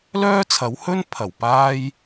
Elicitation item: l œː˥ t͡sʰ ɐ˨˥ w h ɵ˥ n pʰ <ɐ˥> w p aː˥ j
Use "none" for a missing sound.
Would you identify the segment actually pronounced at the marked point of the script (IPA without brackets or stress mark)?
ɐ˨˩